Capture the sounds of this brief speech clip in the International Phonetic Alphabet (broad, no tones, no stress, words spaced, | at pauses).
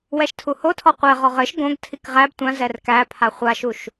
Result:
wɛʃtʰuhotʰɔ qʷɛ ʁɔʁɘʃ ɡõɡ tʰikʁæb tʷãzɛr kæpʰa χʷaʃuʃ